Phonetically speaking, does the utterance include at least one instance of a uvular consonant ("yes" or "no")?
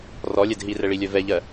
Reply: no